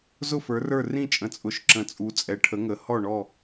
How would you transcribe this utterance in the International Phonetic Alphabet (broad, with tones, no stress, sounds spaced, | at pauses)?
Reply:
z ʊ˥˨ f ə˞˨˥ r ə˞˥˨ r ĩ˥˨ t͡ʃʼ ə̃˨˥ t͡sʼ ʊ˨˥ ʃ ǁ ə̃˨˥ t͡sʼ u˨˥ t͡sʼ ɛ˨˥ ʈʰ ə˨˥ ŋ ə˨˥ h ɔ˥˨ ɳ ɔ˥˨